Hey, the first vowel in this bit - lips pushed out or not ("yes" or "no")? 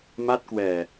no